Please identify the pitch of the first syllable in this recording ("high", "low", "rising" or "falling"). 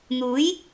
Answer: rising